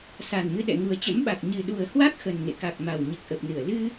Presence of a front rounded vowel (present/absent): absent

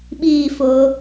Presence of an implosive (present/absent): present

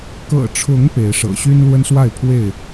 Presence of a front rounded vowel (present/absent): present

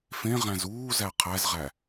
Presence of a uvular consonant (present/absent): present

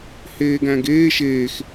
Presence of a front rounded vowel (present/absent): absent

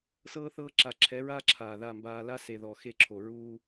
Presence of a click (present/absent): present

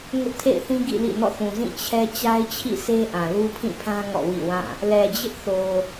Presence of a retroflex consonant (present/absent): absent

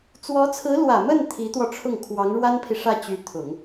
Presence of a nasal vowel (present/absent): absent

